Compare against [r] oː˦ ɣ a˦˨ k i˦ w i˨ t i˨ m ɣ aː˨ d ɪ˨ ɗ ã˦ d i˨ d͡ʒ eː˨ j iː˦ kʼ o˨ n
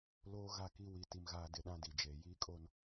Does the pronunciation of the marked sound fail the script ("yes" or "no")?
yes